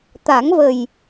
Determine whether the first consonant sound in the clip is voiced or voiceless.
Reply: voiceless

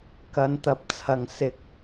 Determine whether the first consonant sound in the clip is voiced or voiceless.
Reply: voiceless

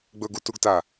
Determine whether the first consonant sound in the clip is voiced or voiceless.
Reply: voiced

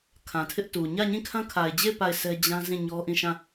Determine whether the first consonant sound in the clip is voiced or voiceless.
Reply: voiceless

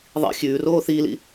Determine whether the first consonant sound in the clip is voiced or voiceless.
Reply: voiced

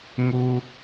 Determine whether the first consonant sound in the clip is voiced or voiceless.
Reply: voiced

